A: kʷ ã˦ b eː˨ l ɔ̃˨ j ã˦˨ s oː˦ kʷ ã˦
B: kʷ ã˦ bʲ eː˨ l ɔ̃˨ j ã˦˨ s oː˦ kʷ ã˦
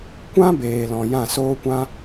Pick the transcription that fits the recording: A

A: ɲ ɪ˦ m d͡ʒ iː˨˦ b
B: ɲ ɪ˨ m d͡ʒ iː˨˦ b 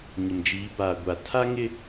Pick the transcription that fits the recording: B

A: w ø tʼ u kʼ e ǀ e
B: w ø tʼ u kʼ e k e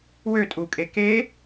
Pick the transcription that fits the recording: B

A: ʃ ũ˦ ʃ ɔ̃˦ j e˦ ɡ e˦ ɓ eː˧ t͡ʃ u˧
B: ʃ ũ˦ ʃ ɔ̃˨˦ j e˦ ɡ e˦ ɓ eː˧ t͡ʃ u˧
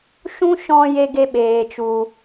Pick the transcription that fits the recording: A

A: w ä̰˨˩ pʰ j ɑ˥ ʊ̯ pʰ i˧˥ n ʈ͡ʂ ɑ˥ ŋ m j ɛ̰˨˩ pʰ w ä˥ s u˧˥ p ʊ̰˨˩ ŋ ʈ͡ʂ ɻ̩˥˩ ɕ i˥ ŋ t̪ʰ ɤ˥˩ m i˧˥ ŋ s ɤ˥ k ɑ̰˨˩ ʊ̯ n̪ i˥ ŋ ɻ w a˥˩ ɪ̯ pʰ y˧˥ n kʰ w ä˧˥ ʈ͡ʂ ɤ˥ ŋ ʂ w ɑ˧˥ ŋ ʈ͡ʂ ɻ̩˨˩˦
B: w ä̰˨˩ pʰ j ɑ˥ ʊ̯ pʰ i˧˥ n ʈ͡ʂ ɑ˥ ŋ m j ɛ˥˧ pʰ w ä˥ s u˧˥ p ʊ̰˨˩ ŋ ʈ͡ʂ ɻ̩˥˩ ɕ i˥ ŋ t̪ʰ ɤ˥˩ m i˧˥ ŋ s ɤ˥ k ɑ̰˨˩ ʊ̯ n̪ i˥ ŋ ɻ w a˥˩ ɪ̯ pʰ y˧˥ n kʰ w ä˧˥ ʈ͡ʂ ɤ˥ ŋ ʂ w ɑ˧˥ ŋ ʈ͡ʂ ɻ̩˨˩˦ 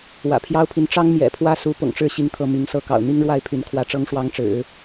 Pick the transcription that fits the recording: A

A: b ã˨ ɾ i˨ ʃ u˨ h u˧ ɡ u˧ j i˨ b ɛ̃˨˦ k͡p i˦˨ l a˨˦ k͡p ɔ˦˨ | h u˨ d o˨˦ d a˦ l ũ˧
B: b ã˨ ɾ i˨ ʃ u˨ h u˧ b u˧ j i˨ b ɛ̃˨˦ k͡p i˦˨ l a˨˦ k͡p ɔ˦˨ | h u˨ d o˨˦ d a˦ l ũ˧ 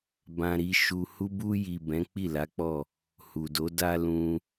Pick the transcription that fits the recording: B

